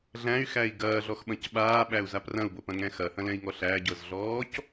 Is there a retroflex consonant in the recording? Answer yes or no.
no